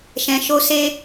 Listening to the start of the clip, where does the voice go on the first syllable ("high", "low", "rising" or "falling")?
low